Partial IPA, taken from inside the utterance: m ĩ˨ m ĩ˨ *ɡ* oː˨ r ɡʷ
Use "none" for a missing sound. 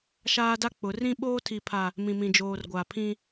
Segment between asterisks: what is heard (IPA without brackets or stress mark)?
d͡ʒ